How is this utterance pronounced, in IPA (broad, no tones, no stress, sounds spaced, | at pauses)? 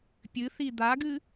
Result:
pʲ ɨ θ i d̪ a ɡ ɨ